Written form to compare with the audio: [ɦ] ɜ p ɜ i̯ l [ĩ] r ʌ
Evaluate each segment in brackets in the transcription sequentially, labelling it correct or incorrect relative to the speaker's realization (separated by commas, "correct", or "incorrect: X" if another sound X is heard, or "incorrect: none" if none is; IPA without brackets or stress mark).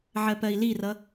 incorrect: ʕ, incorrect: i